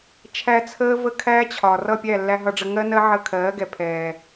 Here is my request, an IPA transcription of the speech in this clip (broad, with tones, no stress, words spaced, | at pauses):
t͡ʃʰæ˧ t͡sʰəː˦və˦kʰæː˦t͡ɕʰɒ˨ rʌ˦˨pʲæ˦˨lːæ˧ ɦʌ˧ɖ͡ʐə˧ŋɜ˦nɜ˦ ʕə˧ kʰɜː˨˦ɡɛ˨pʰɛː˨